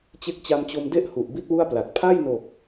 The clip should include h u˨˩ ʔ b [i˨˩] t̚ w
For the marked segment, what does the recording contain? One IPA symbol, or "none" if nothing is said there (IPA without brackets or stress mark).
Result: i˦˥